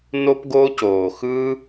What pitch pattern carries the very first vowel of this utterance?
high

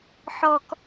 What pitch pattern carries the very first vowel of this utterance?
high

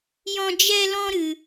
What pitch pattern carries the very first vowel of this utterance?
high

